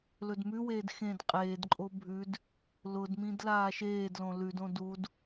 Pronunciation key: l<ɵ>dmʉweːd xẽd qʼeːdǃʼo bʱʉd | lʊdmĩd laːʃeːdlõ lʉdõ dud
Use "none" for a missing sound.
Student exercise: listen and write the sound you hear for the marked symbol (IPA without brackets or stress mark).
ɵ